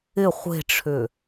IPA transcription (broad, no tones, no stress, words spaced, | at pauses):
ɪ χʷe̤ʈ͡ʂʰʏ